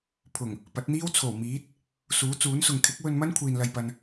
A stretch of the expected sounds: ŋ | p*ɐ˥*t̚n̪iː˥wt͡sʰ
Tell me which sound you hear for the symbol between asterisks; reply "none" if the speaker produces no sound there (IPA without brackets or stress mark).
ɐ˨˥